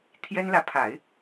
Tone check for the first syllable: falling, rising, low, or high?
high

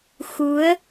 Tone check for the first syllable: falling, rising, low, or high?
rising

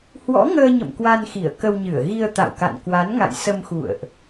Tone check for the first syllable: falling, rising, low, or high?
rising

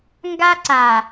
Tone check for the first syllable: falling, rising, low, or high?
high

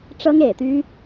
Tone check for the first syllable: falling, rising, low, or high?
high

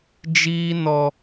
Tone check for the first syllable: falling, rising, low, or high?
high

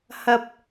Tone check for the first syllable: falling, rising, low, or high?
low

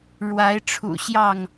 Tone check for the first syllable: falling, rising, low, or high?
rising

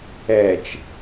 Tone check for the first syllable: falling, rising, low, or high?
low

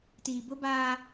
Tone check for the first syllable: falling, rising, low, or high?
low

